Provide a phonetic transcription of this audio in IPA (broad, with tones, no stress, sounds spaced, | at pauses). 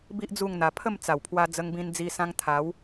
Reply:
b i˦ ʔ d͡z u˥˧ ŋ n̪ a˧ pʰ ə˥˧ m t͡s a˨˩ w pʰ w a˧ d͡z ə˧ ŋ b ĩ˧ n d͡z i˧ s ã˧ ŋ t̪ʰ a˨˦ w